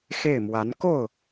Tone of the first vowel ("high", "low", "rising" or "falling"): falling